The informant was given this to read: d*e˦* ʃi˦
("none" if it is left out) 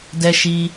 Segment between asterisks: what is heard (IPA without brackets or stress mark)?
ɛ˦